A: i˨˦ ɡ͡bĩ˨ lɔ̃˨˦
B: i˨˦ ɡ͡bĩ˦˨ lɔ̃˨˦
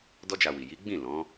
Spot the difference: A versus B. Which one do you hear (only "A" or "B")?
B